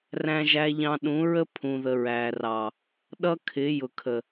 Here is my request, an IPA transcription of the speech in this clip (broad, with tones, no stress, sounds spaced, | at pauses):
r æ̃˦ ʒ æ˦ ʎ ɑ̃˦ ɗ ũ˨˦ ɹ ə˦ pʰ ũ˨ ð ə˨ ɹ æ˨ r ɑ˨ | ɗ ʌ˦ kʰ ɪ˨˦ j ʊ˨ kʰ ə˨